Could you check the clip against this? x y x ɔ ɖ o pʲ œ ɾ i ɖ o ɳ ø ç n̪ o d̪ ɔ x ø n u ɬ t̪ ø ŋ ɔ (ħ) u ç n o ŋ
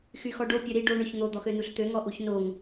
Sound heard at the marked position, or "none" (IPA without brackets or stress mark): ʔ